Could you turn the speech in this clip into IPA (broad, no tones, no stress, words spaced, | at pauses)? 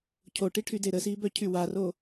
cʰoʈiʈʰyde ɾəsibœcʰy waro